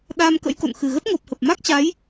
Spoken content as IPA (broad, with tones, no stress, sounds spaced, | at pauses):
ɗ aː˧ m k ə̰˧˥ j k o̰˧˨ n x ɨ˨˩ ɣ ə˦˥ t̚ ŋ o˨˩ p̚ h ə˨˩ p̚ m a˦˥ k̚ t͡ɕ a˨˦ j